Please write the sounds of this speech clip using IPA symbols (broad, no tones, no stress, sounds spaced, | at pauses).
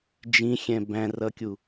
d͡ʒ ĩ xʲ ɛ̃ b æ̃ r ʌ kʲ u